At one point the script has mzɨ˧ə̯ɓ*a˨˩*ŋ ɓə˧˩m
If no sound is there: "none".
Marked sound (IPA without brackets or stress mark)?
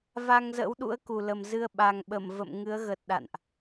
a˨˩